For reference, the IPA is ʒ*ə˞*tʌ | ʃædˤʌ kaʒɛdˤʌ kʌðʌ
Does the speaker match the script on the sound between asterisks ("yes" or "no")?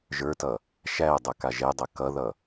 yes